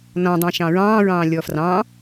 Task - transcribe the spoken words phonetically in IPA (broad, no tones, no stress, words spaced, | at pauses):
nɔ̃dˤɛ̃ ʃɑ̃ɹɑ̃ːɹɑ̃ː lʲɔfrɑ̃